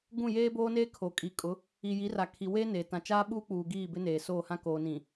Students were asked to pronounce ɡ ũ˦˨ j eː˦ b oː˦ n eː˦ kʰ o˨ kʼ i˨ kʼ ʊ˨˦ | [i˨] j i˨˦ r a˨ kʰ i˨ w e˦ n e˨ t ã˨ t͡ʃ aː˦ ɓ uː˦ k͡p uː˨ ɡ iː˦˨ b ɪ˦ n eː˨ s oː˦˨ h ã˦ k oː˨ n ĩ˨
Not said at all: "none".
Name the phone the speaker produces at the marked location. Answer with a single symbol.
i˨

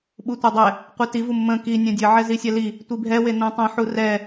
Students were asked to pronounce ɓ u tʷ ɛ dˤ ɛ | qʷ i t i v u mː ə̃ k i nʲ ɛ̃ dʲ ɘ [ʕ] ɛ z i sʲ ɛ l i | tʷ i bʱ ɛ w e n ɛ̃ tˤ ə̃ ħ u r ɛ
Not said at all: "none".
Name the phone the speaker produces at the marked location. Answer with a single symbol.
ʕ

